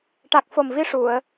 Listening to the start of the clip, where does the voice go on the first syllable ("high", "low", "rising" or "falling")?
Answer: low